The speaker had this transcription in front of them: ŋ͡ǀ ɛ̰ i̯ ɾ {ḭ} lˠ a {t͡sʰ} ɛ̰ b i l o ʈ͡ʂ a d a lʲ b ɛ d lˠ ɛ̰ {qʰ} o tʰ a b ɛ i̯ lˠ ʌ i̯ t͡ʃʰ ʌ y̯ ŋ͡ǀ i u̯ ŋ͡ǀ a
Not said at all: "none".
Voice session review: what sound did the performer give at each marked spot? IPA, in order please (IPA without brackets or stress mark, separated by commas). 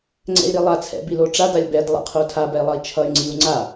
i, t͡sʰ, qʰ